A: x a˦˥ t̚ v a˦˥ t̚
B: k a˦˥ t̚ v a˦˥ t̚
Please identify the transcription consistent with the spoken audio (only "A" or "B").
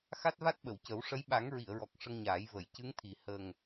A